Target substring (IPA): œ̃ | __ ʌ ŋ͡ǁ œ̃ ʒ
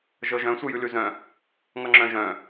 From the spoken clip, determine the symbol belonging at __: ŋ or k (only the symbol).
ŋ